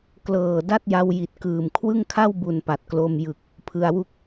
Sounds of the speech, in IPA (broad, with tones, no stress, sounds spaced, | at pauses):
k l ɤː˨˩ d a˥˩ t̚ j a˧ w j i˨˩ t̚ k ɯː˨˩ m kʰ w ɯ˥˩ ŋ kʰ a˥˩ w b u˨˩ n p a˨˩ t̚ k l o˧ m j ɯ˨˩ k̚ | pʰ ɯ˧ a̯ w u˥˩ k̚